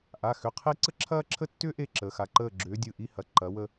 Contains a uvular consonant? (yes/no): yes